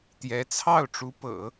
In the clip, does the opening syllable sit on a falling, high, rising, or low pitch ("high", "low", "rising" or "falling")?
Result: rising